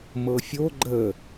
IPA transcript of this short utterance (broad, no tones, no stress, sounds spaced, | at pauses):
m ɤ fʲ o ɡ͡ǃ ə